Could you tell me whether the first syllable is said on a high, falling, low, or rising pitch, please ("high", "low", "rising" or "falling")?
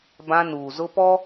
high